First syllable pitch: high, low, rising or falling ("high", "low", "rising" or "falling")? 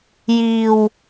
low